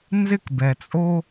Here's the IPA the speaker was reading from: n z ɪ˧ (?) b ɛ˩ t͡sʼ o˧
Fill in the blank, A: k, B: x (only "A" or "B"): A